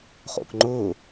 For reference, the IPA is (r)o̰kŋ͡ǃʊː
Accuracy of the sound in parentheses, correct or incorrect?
incorrect